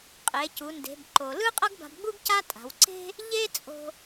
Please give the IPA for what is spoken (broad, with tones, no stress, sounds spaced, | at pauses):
qʼ e˩˧ c u˩˧ n d e̤˩˧ b ǃ o˩ l ɯ˥ qʼ ʌ˥ ɡ b a̤˧ b ɡ͡b u˥ ɡ c a˥ tʼ a̤˩˧ w ǀ e̤˥ | ʎ e˥ t͡sʼ o̤˧